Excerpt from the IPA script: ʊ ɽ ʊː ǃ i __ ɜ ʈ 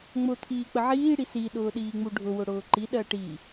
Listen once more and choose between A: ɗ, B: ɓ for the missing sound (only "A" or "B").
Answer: A